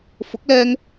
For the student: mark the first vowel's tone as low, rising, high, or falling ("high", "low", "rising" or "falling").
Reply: rising